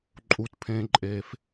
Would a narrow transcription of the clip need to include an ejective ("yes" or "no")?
yes